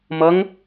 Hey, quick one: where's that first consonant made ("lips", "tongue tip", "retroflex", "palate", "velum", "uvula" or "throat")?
lips